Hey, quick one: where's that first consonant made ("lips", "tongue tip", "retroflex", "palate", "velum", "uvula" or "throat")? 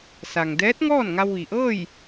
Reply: tongue tip